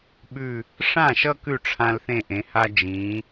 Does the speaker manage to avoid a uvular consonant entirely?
yes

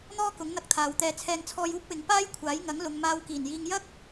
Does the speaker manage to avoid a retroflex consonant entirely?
yes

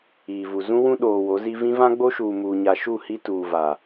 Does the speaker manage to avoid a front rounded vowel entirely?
yes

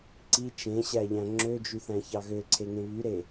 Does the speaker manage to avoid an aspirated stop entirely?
no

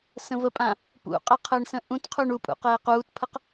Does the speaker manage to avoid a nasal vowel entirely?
no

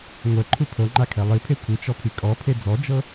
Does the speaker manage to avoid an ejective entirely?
no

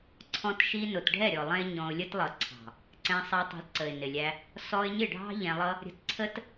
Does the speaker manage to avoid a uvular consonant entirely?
yes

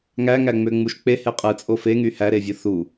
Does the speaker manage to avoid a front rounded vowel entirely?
no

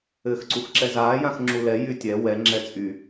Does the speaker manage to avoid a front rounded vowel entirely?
no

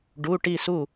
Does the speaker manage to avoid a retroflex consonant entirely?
no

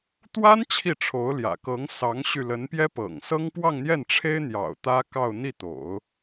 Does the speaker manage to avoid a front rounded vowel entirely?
no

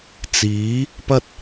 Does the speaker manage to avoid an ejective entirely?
yes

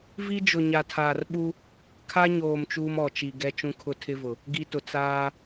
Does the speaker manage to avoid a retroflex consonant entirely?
yes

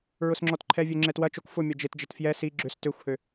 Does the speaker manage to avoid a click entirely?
no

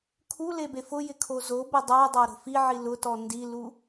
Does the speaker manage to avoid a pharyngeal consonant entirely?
no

